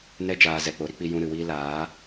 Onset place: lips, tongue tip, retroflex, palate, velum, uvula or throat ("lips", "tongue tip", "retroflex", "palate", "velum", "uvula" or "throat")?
tongue tip